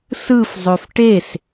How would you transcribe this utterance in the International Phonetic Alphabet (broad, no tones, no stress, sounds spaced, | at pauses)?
s ɯ f zˤ ø f ʈ e s